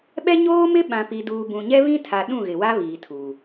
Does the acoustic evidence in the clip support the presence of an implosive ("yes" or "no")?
yes